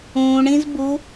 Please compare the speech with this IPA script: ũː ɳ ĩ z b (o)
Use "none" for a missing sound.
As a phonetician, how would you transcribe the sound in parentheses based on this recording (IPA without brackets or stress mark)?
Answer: u